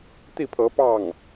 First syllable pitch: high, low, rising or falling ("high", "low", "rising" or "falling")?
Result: falling